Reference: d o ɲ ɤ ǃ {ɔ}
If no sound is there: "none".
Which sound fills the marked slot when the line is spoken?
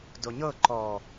ɔ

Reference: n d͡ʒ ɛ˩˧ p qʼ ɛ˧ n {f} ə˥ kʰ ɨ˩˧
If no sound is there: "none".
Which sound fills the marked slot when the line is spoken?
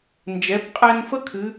f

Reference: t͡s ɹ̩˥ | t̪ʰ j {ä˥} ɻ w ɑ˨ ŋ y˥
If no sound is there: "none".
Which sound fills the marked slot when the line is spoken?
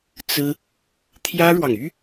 ä˥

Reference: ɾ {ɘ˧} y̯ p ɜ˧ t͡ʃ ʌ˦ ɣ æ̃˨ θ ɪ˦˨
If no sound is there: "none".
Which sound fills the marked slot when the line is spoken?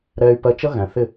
ɛ˧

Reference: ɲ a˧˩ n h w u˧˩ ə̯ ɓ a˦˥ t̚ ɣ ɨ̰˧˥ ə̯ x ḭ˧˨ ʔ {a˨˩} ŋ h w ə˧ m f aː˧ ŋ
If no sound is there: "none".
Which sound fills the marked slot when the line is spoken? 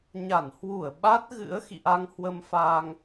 a˧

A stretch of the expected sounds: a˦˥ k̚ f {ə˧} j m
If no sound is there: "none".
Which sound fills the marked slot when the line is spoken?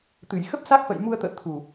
ə̰˧˨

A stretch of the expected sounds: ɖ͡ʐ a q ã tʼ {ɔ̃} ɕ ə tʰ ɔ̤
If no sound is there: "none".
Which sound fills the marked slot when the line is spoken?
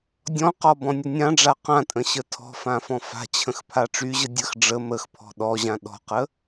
ə̃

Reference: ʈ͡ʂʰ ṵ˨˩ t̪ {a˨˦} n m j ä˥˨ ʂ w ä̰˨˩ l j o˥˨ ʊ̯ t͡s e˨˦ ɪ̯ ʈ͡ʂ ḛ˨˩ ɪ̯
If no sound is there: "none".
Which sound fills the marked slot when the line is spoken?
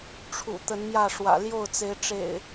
ə˨˦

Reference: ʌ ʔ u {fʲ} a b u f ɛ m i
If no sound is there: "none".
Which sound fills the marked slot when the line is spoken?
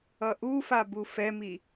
f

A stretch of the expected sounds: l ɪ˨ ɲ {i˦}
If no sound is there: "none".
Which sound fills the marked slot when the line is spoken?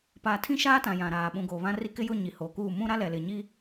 i˦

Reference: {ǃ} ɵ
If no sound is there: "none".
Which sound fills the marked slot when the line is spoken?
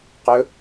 q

